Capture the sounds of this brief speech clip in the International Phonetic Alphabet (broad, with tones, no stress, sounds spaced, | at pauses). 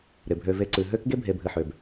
ɾ ɪ˩ bʱ ø˨ v e˨ ǀ ɨ˩ ɦ ø˥ k ɡ e˥ bʱ e˨ bʱ ɨ˨ ħ ø˩ b